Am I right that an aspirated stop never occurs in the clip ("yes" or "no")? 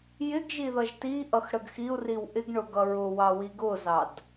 yes